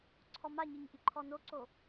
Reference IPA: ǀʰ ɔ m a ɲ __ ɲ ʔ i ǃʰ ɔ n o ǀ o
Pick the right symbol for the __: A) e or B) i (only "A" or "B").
B